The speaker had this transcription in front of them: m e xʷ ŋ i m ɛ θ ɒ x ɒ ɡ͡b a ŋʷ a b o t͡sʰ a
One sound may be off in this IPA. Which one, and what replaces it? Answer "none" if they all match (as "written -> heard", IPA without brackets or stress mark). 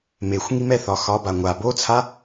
ɡ͡b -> b